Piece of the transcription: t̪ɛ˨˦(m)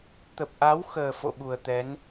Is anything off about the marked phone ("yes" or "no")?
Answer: yes